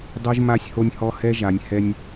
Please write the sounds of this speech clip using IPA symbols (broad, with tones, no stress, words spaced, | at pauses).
dˤo˦ʒ ma˦sʲho˦nʲhɔ˦ hɛ˦ʒa˨nʲ hɛ˦nʲ